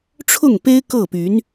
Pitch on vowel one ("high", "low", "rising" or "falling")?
falling